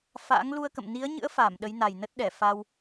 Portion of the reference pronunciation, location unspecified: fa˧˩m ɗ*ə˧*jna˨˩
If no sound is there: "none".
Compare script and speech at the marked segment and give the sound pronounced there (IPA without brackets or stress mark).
ə˨˦